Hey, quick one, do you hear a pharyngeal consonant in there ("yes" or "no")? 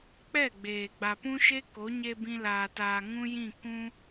no